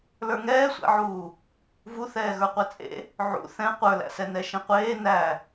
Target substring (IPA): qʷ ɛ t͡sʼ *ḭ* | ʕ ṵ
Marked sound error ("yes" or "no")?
yes